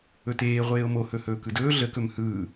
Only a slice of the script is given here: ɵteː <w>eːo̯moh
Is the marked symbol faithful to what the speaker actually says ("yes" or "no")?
no